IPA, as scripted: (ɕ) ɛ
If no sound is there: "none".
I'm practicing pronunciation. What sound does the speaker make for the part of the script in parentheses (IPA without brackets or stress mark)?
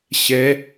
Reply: ɕ